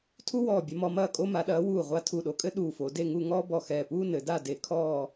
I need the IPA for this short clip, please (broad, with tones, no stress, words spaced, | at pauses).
tʰu˥ wɔː˧˩bʲɐ˧mɔ˧ mɐː˧˩kʼo˧ma˩˧ɗɐː˩˧ wuː˧˩ʁʷa˧ tʰu˧˩ɗo˧kʼɘ˥ ɗuː˧˩fo˩˧ de˥˧ŋu˥˧ ŋɔː˥bɔ˧˩ xɛː˧˩puː˥ nɘ˩˧da˥˧ de˧kʰɔː˥˧